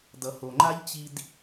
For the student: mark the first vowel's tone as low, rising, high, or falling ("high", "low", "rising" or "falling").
low